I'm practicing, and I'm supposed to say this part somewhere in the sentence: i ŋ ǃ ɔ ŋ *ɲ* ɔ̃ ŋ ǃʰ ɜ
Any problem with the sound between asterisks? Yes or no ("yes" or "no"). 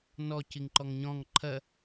no